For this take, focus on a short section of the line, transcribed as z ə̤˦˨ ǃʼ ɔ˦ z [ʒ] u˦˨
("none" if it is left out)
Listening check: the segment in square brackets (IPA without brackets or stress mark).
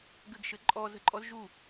ʒ